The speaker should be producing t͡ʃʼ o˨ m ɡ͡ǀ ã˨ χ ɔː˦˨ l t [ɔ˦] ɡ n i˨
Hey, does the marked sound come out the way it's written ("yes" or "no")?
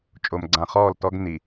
yes